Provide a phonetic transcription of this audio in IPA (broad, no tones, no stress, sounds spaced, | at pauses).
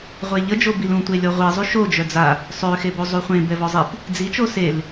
ʁʷ e ʎ ə d͡ʒ o b i l ũ tʷ e lʲ ɔ ʁʷ i zˤ y ʃ o d͡ʒ œ d͡z a | sˤ ø x e b o zˤ u χʷ ẽ b ɛ v ɔ zˤ i p | d͡z i t͡ʃ o s e l